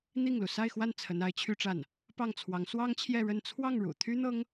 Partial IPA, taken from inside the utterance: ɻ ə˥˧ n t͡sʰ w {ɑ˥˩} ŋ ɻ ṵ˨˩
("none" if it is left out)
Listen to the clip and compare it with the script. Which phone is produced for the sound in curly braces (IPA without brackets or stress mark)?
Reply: ɑ˥˩